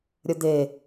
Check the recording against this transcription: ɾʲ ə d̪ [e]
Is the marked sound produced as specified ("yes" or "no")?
yes